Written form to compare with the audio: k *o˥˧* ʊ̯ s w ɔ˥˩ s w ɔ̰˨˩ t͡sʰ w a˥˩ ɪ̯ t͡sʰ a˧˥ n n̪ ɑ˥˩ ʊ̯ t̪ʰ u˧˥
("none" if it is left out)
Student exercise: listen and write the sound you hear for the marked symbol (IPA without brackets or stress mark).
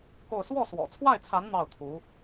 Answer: o˥˧